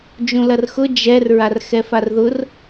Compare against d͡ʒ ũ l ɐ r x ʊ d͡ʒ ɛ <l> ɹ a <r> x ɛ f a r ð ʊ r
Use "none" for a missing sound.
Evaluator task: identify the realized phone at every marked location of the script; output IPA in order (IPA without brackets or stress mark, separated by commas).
r, r